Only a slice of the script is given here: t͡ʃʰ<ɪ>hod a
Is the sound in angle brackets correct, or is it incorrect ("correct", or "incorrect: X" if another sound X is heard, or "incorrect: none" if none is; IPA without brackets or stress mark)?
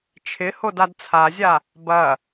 correct